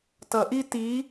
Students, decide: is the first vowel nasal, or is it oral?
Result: oral